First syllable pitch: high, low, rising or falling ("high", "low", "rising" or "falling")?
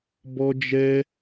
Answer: high